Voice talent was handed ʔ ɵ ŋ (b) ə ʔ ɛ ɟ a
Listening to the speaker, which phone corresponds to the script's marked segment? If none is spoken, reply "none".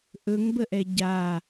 b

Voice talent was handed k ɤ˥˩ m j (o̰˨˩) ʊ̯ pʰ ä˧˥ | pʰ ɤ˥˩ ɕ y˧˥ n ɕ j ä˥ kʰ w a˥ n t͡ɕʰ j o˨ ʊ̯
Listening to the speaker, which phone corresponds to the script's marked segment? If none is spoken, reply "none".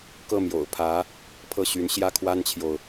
o̰˨˩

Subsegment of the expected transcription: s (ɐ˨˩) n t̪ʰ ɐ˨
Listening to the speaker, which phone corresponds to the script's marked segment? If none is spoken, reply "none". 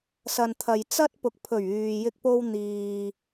ɐ˨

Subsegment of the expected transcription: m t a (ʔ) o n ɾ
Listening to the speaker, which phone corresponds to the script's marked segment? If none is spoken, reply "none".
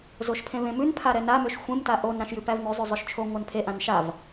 ʔ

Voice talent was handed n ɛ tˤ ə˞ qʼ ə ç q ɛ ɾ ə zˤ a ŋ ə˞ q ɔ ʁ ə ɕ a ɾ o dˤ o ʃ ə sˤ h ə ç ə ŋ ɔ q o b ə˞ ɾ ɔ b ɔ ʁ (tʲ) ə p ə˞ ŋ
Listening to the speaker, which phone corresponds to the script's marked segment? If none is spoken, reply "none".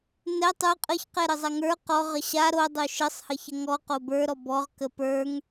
k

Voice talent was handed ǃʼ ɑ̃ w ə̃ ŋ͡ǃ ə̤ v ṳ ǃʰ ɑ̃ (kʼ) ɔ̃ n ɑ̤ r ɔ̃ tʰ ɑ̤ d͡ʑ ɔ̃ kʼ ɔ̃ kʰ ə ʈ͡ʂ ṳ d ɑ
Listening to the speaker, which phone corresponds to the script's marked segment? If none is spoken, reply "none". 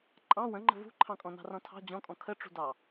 kʼ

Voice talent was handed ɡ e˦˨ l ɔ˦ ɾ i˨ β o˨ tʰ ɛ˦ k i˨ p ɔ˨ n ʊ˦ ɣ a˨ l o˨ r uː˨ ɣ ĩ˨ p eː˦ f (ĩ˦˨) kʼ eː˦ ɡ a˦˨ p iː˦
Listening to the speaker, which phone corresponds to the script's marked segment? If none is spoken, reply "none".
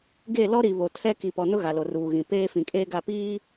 ĩ˨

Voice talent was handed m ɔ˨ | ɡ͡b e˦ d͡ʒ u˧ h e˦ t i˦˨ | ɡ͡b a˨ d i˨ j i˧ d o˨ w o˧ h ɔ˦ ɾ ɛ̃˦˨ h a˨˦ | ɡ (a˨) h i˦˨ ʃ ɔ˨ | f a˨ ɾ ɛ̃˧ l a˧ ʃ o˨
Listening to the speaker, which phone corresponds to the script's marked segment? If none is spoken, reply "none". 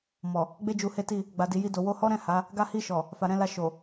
a˦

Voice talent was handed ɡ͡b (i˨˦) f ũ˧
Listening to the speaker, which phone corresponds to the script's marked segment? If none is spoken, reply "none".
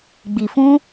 i˨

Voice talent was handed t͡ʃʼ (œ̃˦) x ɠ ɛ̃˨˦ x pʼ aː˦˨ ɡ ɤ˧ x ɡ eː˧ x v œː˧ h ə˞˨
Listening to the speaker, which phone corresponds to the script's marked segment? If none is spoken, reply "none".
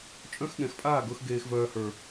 œ̃˦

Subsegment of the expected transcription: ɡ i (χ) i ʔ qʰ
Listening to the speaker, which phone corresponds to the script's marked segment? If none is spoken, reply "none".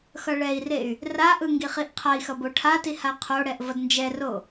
χ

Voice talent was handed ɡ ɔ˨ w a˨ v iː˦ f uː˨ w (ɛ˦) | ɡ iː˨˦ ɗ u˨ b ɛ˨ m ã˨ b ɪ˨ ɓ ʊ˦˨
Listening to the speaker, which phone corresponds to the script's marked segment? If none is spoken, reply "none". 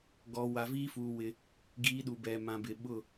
ɪ˦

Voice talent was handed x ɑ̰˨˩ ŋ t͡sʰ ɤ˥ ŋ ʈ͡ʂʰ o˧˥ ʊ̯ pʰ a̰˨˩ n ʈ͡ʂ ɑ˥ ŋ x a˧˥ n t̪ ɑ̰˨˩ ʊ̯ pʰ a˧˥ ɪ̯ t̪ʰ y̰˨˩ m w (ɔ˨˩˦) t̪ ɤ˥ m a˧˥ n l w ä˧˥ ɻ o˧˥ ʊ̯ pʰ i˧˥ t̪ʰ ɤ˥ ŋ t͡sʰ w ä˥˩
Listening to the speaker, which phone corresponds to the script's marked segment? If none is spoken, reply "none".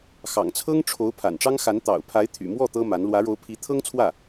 ɔ˥˩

